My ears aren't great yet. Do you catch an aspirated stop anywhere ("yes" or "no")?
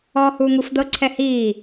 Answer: yes